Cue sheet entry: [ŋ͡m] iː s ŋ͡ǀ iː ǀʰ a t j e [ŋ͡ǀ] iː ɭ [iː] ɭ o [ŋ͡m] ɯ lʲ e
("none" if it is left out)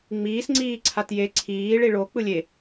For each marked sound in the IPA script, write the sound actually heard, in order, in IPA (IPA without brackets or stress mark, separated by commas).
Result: ŋ͡m, ǀʰ, i, k͡p